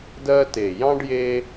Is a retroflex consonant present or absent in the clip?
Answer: present